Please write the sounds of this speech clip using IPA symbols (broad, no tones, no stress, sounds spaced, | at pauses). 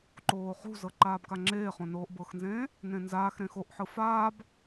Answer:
ǃ oː χ ṳ z ɤ ǃ aː b k a ŋ͡ǁ eː χ õ n oː ʔ b ɤ x n z ẽː | n ẽ n z aː x ɾ ẽ x o ʔ ħ ɯ f aː b